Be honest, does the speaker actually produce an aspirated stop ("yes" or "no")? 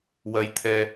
yes